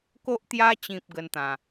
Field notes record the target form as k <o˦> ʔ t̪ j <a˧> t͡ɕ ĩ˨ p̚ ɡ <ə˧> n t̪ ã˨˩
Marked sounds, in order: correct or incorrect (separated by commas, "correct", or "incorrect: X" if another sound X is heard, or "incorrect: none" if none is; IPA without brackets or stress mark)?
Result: correct, correct, correct